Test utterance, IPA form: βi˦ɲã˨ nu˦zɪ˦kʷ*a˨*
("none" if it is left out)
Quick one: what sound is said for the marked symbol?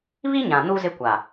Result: a˨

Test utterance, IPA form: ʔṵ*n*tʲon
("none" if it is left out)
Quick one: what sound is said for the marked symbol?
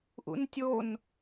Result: n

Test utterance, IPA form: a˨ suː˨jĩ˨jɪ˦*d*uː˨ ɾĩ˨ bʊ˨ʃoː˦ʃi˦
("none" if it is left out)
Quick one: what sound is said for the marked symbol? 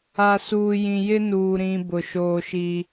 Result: n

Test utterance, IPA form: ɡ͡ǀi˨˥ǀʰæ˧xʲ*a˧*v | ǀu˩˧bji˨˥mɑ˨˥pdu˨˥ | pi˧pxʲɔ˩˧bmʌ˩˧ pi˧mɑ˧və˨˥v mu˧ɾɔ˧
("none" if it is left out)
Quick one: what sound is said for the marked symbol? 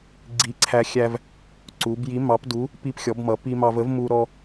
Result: æ˧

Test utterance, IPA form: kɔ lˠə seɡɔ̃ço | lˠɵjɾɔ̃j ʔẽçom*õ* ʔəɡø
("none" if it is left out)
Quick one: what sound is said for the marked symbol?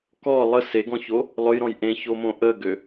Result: õ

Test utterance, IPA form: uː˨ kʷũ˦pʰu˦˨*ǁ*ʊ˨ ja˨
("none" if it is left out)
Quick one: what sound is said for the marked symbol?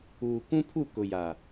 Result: k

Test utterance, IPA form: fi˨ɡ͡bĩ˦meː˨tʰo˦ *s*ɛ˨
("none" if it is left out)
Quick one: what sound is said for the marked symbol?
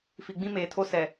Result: s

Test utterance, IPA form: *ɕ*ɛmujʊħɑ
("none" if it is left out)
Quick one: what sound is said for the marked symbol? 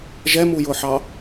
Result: ʒ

